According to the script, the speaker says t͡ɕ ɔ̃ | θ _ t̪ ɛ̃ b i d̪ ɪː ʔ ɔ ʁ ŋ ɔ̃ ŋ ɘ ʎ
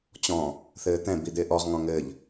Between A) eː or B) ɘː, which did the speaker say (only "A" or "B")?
B